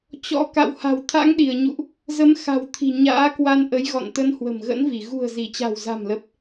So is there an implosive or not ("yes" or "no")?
yes